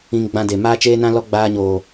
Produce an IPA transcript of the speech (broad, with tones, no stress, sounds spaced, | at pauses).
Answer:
ĩ˧ ŋ ɡ͡b ã˧ d e˨ m aː˦ t͡ʃ eː˦ n ã˦ l ɔ˦ ɡ͡b aː˧ ɲ oː˨